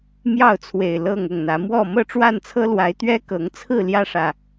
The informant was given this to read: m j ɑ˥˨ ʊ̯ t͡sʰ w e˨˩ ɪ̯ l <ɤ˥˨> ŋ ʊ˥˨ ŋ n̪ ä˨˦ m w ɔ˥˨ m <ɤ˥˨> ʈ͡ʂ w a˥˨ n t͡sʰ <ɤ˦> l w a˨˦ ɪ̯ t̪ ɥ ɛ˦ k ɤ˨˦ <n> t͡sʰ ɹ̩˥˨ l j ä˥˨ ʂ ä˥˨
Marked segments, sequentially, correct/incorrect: correct, correct, correct, incorrect: ŋ

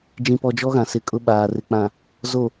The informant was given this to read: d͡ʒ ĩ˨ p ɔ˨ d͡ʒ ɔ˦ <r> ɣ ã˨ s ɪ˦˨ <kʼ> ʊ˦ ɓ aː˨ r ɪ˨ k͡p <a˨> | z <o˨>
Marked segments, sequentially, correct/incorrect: incorrect: none, correct, incorrect: ã˨, correct

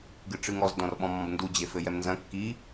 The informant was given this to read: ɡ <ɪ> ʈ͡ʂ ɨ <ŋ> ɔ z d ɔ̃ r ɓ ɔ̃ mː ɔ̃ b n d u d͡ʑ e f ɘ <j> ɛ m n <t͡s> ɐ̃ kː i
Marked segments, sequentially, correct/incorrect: incorrect: ɨ, correct, correct, incorrect: z

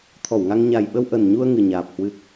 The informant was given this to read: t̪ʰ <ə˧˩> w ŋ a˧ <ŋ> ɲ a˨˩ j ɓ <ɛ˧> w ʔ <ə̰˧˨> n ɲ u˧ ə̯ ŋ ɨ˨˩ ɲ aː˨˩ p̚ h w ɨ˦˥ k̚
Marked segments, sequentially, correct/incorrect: incorrect: ɔ˧˩, correct, incorrect: ə˧, incorrect: ə˨˩

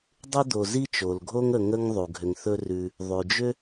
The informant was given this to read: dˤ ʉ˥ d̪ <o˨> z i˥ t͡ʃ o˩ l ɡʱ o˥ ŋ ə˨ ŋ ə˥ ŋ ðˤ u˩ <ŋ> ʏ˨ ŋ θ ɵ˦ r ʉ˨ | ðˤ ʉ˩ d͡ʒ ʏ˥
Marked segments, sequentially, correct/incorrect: correct, incorrect: ɡʱ

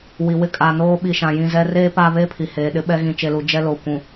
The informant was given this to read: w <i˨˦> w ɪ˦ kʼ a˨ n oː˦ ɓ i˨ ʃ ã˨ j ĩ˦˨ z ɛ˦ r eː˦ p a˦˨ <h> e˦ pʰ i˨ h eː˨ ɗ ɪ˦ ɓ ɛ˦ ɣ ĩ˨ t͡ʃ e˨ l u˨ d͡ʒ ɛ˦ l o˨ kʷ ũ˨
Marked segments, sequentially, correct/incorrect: incorrect: i˨, incorrect: β

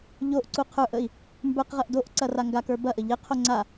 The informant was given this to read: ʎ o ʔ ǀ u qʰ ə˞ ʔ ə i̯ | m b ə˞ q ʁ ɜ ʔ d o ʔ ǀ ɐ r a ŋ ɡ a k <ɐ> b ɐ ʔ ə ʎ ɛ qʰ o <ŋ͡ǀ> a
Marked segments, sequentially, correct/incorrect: incorrect: ə˞, correct

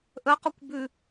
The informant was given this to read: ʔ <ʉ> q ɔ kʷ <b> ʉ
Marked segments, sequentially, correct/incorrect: incorrect: ə, correct

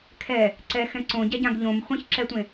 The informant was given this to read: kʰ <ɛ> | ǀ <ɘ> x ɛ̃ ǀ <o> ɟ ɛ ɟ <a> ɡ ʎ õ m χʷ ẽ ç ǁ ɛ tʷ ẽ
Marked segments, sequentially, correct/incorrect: correct, incorrect: ɛ, incorrect: õ, incorrect: ã

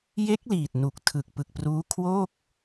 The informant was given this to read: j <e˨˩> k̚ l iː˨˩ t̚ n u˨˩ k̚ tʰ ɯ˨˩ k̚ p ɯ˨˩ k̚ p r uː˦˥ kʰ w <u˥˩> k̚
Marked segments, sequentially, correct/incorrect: incorrect: e˦˥, incorrect: o˥˩

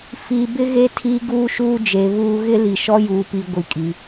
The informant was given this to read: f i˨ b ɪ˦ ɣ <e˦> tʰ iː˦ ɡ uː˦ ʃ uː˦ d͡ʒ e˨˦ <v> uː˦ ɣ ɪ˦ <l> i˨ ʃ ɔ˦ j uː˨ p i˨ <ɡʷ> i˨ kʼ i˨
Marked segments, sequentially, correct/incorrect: correct, incorrect: β, correct, correct

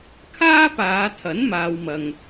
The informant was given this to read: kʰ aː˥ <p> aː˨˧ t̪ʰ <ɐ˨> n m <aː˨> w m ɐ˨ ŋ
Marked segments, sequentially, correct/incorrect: correct, incorrect: ɐ˨˥, correct

